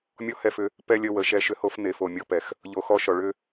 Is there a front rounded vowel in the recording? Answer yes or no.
yes